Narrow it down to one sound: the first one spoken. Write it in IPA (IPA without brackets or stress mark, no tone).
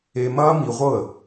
e